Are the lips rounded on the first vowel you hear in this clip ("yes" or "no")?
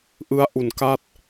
no